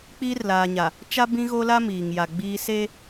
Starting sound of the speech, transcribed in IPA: k͡p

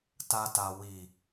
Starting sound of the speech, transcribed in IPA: t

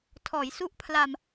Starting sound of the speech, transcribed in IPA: tʰ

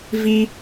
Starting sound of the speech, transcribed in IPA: v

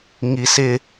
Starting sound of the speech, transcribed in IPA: ŋ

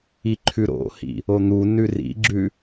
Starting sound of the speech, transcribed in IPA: i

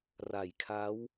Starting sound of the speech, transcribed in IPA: r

